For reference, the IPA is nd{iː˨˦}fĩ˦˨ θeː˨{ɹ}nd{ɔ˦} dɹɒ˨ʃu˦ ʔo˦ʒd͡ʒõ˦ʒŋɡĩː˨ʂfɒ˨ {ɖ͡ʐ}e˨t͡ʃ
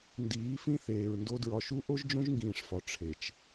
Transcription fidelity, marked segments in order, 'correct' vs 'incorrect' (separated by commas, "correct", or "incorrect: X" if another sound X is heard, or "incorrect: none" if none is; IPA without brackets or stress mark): correct, correct, incorrect: o˦, incorrect: ʈ͡ʂʰ